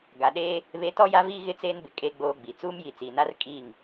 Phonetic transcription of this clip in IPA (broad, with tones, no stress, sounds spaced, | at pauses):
ɡ a˨ ɗ eː˦ | β e˨˦ t ɔ˦ j a˦ v iː˦ ɣ ɪ˦ t͡s eː˦ n b ɪ˨ kʼ e˦ ɡ͡b oː˦ ɡ͡b i˨ t͡s uː˦ m j i˨ t͡s iː˨ n a˦ r kʼ iː˦˨ ŋ